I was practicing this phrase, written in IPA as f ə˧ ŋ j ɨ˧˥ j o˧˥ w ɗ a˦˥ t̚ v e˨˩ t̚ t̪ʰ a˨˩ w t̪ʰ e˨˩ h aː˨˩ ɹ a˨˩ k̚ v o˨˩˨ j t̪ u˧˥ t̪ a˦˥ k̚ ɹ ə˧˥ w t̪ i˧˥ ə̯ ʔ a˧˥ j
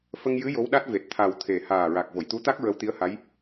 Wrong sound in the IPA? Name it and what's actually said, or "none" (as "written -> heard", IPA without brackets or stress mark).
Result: ʔ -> h